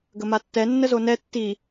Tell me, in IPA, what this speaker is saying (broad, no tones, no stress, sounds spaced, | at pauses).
ɡ ə m a tː ɛ nː ə z o n ɛ tː i